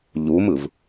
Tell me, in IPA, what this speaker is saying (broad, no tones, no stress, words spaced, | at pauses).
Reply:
ʎumɯv